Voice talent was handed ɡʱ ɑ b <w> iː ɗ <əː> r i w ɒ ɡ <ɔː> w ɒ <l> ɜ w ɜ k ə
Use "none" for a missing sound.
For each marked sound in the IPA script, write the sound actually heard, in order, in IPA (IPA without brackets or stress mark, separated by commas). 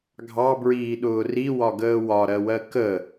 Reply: ɹ, ʊː, əː, ɾ